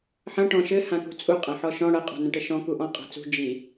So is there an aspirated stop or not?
no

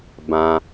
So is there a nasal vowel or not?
yes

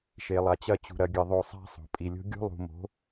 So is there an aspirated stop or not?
no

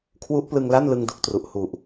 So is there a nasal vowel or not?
no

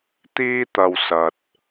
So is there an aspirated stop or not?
no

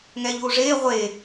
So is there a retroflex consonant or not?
yes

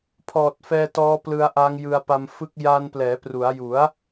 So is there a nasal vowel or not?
no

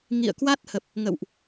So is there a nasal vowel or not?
no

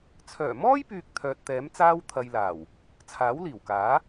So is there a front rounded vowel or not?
yes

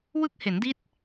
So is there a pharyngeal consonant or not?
no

